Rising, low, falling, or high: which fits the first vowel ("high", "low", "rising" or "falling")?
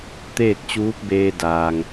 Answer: falling